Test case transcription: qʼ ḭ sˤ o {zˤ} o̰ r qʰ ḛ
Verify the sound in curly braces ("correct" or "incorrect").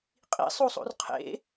incorrect